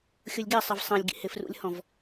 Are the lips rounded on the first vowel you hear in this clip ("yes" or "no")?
yes